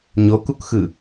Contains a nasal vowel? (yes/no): no